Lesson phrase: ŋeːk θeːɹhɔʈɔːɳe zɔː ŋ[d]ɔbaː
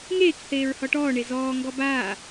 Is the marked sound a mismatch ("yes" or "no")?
yes